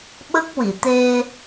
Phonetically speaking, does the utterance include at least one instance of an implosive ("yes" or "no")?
yes